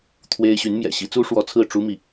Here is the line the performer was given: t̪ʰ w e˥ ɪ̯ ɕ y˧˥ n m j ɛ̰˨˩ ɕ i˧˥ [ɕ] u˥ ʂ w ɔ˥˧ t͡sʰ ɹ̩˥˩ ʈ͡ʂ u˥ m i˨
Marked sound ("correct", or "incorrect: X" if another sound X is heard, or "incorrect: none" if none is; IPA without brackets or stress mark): incorrect: t͡s